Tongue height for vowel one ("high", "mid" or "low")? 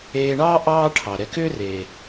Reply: mid